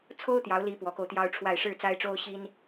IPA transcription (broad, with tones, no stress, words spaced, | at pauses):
t͡sʰo˥ʊ̯t̪jɑ˧˥ʊ̯li˧˥ pwɔ˧˥ko˧ʊ̯t̪jɑ˥ʊ̯ʈ͡ʂʰwa˥˧ɪ̯ ʂɻ̩˥˩t͡sa˥ɪ̯ʈ͡ʂo˥ʊ̯ ɕi˥n